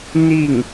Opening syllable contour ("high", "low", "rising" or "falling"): falling